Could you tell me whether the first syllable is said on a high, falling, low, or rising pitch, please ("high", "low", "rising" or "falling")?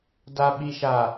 low